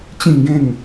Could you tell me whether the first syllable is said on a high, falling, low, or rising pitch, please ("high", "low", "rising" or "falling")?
falling